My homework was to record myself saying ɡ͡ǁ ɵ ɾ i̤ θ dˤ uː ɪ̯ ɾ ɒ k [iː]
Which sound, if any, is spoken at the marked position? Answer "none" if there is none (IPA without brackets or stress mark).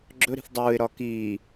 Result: iː